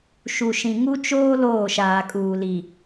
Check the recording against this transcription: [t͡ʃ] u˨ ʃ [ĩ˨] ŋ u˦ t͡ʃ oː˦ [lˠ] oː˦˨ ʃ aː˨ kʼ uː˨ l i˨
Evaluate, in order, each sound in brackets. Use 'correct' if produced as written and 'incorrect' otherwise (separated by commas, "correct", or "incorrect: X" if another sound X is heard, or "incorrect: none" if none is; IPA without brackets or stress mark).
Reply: incorrect: ʃ, correct, incorrect: l